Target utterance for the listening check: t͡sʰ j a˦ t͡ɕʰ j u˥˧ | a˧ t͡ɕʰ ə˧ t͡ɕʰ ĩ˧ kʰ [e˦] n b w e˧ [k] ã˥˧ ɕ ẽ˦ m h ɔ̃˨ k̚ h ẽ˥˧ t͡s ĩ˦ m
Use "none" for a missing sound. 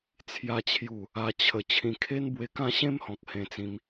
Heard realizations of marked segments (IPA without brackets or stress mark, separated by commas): e˦, k